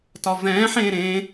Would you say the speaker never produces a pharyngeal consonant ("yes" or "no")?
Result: no